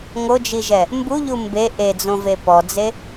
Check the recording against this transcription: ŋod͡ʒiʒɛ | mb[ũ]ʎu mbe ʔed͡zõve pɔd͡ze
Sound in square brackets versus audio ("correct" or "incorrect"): incorrect